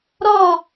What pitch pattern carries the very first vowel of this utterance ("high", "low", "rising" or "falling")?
falling